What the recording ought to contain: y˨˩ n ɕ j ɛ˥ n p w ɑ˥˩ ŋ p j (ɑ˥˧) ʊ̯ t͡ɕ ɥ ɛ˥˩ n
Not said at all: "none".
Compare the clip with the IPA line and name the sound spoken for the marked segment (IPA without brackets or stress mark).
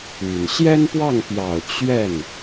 ɑ˨˩